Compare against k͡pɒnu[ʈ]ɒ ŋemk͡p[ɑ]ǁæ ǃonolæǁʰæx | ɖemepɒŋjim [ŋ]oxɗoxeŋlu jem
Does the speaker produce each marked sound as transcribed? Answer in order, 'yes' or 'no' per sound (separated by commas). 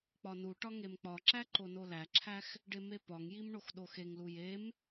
yes, no, no